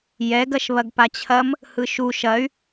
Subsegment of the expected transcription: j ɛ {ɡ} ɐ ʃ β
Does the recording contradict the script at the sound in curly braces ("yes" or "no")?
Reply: no